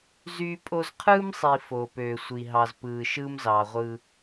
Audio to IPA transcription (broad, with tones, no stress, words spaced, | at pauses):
zyː˦pʼo˦z qʰɯː˦msˤi˨ foː˨pøː˨ sʷi˨ɦɑ˨zpɯː˨ ʃɯː˦mzɑː˨ʁʷɯ˦